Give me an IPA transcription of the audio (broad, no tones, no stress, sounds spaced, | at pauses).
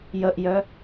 j ə ʔ j œ